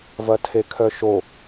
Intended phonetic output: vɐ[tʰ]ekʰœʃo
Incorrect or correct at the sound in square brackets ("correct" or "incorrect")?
correct